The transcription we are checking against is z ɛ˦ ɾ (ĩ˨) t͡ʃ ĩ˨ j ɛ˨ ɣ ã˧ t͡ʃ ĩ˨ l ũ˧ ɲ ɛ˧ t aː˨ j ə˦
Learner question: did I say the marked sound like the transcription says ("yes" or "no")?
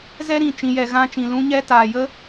yes